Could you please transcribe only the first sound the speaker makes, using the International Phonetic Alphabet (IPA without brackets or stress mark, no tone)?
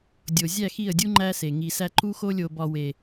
dʲ